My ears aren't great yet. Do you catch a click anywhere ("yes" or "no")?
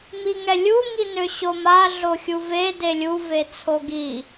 no